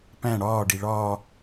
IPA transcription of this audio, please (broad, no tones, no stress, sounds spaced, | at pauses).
p æ̃ ɽ ɒː ɖ i ɭ ɒː